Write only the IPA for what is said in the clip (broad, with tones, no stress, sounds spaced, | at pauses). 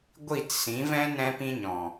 ɡʷ i˦˨ t s ĩ˨˦ v ɛ̃˦ n ɛ̃˦ p ĩ˦ ɲ ɔ̃˨